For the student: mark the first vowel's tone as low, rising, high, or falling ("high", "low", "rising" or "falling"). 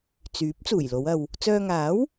rising